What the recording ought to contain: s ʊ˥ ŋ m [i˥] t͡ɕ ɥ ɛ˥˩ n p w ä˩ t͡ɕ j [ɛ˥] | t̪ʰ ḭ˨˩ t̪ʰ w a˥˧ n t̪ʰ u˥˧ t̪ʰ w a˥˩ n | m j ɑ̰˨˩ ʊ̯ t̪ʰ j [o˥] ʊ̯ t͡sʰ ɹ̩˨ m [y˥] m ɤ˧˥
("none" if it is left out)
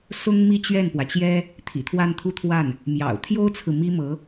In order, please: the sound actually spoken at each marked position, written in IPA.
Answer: i˥˧, ɛ˥, o˥, i˥

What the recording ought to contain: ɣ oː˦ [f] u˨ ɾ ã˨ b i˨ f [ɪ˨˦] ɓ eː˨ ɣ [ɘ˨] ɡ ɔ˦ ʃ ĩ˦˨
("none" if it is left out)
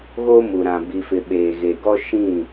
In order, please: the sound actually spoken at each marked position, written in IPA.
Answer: m, ɪ˨, e˨

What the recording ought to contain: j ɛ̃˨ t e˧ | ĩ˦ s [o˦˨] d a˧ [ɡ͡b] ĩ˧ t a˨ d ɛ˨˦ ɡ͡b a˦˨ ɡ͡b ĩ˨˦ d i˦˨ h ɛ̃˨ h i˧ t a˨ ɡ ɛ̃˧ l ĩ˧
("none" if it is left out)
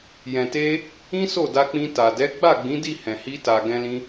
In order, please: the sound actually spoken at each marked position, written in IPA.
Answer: o˦˨, k͡p

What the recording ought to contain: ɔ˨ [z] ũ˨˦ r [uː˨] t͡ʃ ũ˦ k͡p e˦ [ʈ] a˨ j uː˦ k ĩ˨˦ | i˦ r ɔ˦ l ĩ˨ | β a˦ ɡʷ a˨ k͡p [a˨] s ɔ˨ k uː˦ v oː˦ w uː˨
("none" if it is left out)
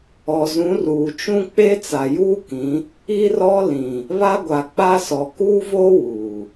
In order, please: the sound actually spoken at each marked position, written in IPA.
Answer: z, uː˨, t͡s, a˦

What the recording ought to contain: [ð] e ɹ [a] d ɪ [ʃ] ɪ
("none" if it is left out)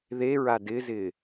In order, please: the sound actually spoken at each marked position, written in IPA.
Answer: ð, a, z

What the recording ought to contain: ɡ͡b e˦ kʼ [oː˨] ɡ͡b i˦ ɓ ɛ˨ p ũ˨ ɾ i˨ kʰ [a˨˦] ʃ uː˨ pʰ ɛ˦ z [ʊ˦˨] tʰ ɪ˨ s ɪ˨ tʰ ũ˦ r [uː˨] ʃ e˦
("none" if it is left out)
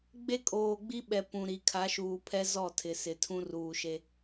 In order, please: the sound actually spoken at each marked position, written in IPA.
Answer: oː˨, a˨˦, ɔ˦˨, uː˨

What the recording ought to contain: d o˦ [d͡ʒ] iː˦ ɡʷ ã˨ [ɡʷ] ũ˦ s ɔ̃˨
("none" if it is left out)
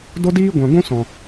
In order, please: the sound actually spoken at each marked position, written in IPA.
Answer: d, ɡʷ

